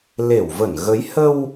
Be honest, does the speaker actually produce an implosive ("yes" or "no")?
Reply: no